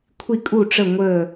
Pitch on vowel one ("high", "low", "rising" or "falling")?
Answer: falling